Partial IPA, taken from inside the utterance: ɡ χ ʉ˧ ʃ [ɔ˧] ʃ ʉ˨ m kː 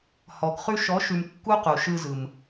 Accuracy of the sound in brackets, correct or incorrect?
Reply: incorrect